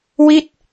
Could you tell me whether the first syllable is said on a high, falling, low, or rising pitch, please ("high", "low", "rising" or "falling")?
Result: falling